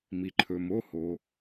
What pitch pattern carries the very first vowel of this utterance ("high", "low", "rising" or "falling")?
low